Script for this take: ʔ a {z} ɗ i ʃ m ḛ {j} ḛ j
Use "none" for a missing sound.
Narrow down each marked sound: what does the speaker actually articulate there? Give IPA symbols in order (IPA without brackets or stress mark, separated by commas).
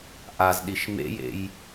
z, j